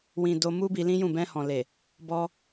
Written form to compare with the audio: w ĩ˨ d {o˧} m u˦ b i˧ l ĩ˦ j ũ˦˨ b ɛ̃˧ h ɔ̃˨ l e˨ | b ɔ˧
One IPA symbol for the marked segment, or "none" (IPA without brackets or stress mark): o˧